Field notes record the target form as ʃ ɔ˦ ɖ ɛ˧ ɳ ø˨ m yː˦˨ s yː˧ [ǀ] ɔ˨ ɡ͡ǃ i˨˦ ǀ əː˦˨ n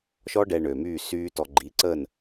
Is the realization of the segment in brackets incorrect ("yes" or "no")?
yes